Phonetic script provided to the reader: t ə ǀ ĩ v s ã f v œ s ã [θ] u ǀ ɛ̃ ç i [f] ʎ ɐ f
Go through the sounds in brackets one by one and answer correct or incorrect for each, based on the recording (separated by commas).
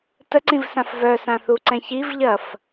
correct, incorrect